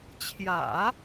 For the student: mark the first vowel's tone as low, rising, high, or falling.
low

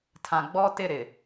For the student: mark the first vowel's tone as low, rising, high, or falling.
low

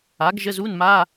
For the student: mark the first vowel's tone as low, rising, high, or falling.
rising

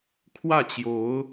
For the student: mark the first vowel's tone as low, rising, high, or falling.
falling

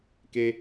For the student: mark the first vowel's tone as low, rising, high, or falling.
high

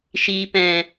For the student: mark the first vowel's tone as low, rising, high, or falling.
low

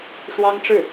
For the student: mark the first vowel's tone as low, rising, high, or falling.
high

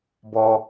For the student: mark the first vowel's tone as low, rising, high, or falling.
high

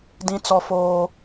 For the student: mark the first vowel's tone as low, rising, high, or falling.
high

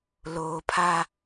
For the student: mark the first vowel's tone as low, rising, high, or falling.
low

